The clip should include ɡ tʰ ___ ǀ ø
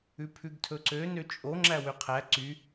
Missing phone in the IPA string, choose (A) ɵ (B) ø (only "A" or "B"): A